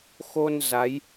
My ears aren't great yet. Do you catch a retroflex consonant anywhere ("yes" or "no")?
no